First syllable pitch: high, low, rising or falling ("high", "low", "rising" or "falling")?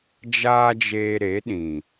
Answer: high